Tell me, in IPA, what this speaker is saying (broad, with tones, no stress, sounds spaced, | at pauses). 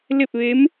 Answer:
l e˥˨ p̚ ʋ e˧˥ m